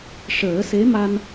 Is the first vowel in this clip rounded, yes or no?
no